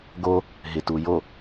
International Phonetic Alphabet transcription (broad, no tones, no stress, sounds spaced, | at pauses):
ɡ o | ɦ ɪ t u j o